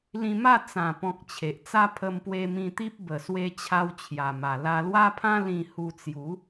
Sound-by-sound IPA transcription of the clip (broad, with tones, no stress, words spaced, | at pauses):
lĩ˧ma˥˧ t͡sã˨˩pɔ̃˨k̚ t͡ɕʰe˨ʔt͡sa˦ pʰə˧mpwe˧mĩ˧t̪i˦p̚ bə˨˩swe˧ t͡ɕʰa˧wt͡ɕʰja˨˩ma˨˩ la˧lwa˦pʰã˦ lĩ˧hu˧t͡sju˨˦